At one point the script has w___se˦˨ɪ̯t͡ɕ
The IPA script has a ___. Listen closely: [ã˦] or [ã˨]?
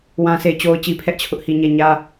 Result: ã˦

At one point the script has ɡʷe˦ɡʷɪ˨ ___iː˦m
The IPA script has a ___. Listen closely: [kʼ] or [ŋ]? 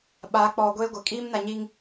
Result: kʼ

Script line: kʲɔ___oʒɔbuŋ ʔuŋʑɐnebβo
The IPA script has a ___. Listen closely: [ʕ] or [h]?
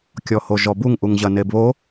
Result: h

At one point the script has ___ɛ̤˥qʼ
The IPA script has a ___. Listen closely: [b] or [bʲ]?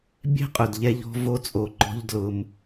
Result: bʲ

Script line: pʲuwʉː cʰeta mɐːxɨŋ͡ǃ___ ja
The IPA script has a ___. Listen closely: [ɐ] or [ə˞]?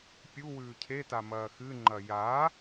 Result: ɐ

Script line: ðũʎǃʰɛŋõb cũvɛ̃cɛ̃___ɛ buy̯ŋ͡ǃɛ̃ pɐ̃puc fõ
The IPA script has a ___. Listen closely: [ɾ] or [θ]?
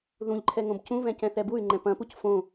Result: θ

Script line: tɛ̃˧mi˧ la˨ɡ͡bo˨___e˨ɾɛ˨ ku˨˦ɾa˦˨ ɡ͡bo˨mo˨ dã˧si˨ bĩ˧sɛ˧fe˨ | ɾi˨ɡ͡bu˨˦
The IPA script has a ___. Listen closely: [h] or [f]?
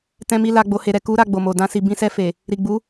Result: h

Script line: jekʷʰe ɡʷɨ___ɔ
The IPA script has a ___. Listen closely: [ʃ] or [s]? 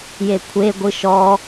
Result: ʃ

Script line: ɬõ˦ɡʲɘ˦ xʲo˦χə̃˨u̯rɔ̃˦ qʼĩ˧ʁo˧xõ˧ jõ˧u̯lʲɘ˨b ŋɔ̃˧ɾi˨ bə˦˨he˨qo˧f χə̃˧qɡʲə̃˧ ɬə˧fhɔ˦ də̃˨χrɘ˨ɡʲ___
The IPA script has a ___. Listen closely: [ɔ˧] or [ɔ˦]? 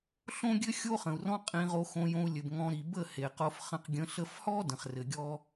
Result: ɔ˦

